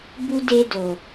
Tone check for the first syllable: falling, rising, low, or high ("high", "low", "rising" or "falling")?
high